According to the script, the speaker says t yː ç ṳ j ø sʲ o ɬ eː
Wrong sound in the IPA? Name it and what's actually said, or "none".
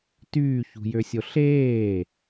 none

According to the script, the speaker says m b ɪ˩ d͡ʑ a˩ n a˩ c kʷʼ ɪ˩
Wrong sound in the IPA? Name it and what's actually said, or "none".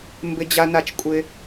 c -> t͡ʃ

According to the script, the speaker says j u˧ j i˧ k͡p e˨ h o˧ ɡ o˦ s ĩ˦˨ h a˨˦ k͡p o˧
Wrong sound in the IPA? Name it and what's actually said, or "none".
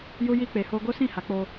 none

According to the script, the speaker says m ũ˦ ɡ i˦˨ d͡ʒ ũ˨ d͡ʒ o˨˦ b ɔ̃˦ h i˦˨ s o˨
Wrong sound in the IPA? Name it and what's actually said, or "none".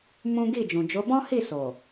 none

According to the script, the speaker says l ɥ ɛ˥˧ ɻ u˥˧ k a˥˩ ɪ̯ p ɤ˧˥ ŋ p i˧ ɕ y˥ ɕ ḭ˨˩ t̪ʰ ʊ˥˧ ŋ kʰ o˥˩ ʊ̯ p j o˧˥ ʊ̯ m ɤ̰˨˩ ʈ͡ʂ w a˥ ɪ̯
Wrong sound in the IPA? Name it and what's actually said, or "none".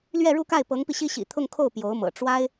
y˥ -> i˥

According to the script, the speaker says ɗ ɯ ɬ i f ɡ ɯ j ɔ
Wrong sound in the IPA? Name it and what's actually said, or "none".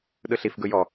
none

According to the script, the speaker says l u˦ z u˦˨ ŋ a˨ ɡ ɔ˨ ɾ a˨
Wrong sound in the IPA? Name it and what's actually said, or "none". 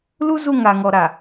ɡ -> ŋ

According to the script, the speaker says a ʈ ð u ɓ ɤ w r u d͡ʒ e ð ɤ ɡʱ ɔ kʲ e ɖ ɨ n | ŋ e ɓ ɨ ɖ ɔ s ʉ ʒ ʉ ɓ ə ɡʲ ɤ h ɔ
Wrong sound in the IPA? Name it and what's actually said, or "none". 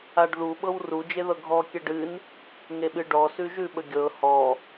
ʈ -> ɖ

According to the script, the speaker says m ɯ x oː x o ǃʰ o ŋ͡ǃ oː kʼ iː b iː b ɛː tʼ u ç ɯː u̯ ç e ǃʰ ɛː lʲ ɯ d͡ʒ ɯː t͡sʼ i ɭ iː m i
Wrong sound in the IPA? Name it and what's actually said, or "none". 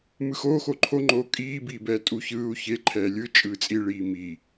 d͡ʒ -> t͡ʃʼ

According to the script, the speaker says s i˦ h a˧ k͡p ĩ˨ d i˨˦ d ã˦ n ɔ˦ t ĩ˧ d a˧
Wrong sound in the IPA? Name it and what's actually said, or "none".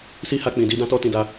n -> t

